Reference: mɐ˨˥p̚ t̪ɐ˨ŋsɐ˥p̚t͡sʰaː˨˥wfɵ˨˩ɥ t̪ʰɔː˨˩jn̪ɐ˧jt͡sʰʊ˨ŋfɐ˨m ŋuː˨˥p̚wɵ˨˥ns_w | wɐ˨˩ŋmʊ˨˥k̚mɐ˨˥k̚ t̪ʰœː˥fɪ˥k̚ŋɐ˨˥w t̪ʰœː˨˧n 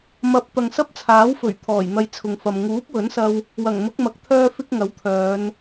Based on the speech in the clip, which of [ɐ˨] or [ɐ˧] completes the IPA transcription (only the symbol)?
ɐ˧